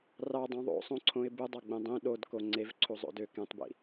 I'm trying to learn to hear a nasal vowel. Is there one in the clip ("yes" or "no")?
yes